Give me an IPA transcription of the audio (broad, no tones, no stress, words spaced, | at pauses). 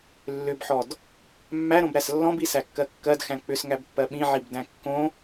lːʏbħɔd | mːæɾõbɾæs lːɔ̃bisækːɜ kːɜdxæ̃ k͡pʏsŋæbpːɜ ɓĩʕibdæ̃ kːõ